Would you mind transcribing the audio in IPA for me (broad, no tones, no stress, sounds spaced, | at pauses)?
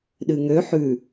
ɗ ɨ ŋ ø ħ ʉ